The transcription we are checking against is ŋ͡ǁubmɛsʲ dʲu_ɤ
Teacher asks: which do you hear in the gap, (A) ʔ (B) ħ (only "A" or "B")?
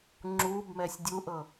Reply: A